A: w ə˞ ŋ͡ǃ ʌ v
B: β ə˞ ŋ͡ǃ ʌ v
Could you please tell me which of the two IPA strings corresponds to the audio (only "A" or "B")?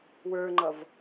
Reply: A